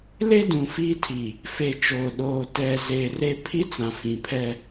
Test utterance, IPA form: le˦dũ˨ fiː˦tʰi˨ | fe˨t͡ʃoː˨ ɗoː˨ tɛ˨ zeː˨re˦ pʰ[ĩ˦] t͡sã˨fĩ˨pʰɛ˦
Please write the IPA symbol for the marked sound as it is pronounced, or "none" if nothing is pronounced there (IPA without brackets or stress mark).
i˦